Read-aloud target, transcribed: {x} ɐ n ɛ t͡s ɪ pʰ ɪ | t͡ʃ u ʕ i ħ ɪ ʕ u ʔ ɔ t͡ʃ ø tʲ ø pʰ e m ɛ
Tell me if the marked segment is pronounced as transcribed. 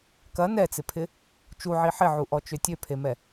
no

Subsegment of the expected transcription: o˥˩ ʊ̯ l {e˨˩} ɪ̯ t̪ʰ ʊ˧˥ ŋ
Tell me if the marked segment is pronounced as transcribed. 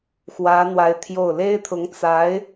no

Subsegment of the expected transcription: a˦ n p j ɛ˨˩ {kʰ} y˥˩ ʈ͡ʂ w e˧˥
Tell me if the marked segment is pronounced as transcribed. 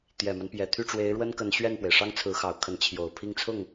no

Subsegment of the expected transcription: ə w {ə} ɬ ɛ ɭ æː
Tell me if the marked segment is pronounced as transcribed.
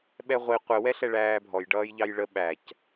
no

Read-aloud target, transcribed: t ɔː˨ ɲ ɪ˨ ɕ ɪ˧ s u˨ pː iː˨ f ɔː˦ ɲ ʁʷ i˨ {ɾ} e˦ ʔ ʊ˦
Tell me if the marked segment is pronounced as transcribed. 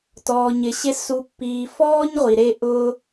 yes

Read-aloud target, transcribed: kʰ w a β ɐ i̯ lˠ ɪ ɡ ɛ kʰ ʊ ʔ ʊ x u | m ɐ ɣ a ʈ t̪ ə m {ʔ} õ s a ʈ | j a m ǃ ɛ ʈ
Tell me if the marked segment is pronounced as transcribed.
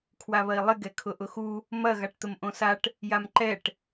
yes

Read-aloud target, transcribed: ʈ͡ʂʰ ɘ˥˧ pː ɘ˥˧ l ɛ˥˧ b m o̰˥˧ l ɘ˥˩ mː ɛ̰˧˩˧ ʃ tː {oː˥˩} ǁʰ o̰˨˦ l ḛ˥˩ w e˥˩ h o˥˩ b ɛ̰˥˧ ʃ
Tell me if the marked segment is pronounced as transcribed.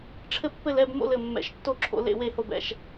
no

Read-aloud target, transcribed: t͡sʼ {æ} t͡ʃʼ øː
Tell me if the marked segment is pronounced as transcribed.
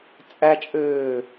yes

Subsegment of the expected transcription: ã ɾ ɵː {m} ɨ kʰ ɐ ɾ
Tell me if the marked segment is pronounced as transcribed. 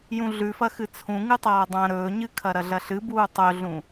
no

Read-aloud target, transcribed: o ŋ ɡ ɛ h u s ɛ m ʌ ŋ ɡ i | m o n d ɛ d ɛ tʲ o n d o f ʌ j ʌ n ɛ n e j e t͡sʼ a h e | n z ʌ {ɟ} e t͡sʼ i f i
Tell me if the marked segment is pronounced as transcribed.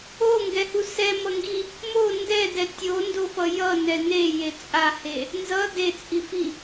no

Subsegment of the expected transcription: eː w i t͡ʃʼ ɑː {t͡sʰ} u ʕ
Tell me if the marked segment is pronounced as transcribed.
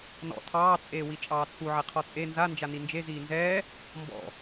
yes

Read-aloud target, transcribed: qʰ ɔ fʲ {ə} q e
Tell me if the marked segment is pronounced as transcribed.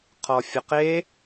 yes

